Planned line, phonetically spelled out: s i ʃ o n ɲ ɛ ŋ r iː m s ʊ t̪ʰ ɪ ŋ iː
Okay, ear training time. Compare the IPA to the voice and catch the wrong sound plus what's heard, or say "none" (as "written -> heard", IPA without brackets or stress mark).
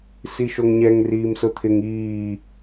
n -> ŋ